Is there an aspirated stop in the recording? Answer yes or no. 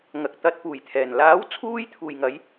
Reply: yes